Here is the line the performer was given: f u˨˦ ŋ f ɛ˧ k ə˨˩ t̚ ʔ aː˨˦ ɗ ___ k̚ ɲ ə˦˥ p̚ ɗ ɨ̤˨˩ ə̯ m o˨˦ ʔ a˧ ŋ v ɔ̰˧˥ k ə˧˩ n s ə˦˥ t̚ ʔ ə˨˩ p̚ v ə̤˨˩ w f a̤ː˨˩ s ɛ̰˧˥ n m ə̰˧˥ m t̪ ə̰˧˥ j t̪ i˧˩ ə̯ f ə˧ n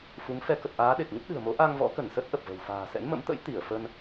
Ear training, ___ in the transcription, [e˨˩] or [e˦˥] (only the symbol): e˨˩